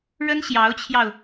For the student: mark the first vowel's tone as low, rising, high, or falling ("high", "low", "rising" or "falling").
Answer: high